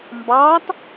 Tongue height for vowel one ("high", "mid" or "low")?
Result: low